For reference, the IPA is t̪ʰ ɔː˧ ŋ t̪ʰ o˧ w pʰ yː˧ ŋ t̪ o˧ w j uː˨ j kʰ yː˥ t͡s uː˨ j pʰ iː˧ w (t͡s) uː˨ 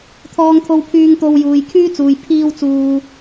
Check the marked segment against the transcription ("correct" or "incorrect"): correct